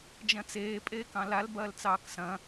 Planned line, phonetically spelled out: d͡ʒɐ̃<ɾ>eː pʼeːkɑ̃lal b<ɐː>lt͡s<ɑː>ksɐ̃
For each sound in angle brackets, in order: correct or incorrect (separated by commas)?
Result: incorrect, correct, correct